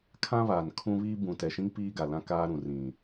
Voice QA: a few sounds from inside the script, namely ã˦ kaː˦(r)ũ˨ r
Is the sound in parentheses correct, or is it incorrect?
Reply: incorrect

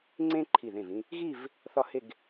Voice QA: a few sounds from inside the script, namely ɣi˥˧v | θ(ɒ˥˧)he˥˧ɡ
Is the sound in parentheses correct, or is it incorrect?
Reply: correct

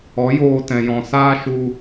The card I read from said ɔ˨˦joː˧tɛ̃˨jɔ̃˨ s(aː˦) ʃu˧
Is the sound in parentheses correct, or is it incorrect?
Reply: incorrect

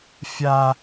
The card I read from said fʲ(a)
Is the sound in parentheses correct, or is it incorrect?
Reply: correct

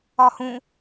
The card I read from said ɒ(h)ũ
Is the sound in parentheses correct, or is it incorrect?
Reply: correct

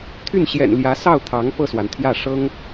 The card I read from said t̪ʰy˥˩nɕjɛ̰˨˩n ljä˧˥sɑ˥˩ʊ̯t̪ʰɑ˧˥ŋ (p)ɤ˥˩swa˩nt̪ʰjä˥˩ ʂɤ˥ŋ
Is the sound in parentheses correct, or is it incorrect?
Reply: correct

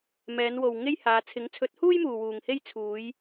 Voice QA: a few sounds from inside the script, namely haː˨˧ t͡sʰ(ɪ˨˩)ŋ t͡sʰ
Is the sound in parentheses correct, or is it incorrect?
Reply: incorrect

